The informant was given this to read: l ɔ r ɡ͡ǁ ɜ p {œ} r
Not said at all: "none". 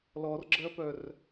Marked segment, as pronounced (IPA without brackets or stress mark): œ